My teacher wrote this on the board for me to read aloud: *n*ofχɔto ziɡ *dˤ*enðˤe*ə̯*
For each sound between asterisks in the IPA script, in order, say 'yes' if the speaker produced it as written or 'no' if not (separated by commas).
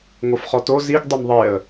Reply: no, yes, yes